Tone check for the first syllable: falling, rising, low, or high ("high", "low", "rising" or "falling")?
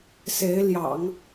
rising